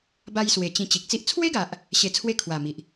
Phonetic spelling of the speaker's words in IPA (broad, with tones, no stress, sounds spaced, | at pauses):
b a˧ j s w e˨˩ t͡ɕ ĩ˨˩ t͡ɕ i˨ k̚ t͡s i˦ ʔ t͡sʰ w e˦ ɡ a˨ ʔ | ɕ e˧ t͡sʰ w e˥˧ kʰ w a˨˩ m i˨ ʔ